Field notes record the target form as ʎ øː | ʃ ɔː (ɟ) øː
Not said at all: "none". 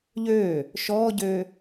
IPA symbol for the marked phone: ɟ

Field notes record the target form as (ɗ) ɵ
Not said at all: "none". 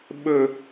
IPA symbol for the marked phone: ɓ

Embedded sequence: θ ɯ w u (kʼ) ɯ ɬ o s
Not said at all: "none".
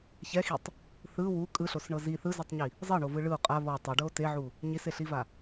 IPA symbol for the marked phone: kʼ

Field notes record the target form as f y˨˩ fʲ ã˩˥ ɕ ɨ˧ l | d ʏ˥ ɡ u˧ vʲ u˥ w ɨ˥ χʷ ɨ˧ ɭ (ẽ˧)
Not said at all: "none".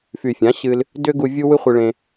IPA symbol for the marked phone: ẽ˧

